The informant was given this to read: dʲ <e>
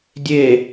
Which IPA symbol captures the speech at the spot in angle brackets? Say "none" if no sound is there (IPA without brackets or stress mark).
e